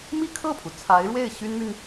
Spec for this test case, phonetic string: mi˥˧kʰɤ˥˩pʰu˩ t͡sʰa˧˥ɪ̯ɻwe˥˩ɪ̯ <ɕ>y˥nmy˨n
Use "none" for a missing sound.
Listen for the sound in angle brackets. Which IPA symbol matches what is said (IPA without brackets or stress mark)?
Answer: ɕ